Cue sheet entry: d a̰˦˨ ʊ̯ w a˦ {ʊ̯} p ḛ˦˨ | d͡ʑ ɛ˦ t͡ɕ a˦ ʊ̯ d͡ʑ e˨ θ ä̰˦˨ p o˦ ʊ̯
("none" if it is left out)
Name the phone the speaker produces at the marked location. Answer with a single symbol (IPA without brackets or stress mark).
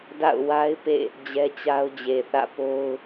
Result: ɪ̯